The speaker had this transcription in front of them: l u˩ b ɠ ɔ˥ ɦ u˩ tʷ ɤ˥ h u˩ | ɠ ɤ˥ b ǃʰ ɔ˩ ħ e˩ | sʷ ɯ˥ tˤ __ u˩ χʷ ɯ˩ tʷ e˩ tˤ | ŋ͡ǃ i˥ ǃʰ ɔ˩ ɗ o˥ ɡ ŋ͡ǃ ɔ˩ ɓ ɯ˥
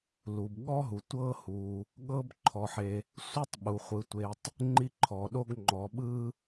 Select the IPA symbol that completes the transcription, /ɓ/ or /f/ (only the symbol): ɓ